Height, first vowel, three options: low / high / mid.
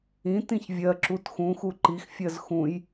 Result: high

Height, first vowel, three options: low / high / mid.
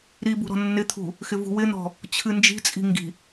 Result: high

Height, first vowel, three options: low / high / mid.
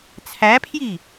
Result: low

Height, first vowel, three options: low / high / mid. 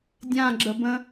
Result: low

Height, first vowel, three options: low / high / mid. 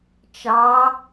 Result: low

